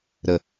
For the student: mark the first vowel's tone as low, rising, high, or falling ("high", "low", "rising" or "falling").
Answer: low